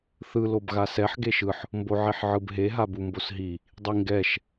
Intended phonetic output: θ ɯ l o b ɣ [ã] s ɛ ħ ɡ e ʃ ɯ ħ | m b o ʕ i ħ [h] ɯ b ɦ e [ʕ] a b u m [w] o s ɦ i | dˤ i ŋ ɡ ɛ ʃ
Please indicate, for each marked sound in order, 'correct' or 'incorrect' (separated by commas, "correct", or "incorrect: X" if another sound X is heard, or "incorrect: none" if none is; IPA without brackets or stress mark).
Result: incorrect: a, incorrect: ʕ, incorrect: ɦ, incorrect: b